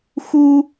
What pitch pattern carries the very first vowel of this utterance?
high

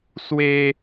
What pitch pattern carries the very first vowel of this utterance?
high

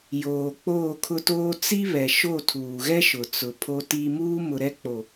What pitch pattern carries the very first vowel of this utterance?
low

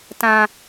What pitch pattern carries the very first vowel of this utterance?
low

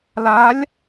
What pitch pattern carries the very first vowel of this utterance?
rising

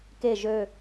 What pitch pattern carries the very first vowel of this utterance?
low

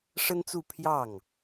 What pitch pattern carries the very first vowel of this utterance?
high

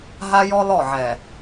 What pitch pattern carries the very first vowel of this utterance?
high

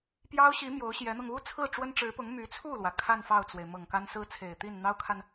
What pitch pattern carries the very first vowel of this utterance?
high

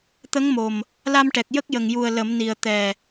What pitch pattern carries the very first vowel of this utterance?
rising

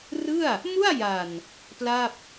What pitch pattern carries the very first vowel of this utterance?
falling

